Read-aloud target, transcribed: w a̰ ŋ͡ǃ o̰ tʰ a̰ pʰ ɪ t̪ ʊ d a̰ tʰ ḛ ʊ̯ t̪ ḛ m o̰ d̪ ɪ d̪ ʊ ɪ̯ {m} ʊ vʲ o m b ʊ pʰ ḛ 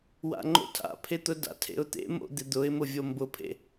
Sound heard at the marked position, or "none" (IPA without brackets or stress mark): m